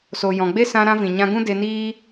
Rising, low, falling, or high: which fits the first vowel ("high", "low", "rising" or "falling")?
low